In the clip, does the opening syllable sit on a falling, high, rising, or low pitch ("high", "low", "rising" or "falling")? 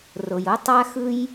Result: low